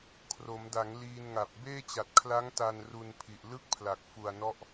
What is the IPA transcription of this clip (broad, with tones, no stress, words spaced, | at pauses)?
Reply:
kʰro˩˦mda˩˦ŋ liː˧nŋa˨˩p̚ beː˥˩t͡ɕa˨˩t̚kʰla˦˥ŋ ta˧nru˧npʰi˨˩ʔ lɯ˥˩k̚pʰla˨˩k̚ fu˨˩a̯nɔ˦˥ʔ